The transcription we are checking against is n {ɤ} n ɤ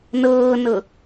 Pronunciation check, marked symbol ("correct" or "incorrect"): incorrect